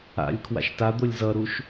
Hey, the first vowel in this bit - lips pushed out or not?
no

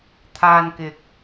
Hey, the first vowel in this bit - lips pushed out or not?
no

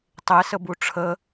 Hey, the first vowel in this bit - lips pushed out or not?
no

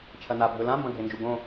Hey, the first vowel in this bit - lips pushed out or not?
no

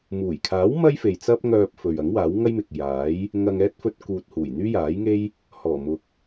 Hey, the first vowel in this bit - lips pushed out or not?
yes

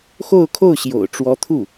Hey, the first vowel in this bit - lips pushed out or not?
yes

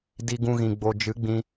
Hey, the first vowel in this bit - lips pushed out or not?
no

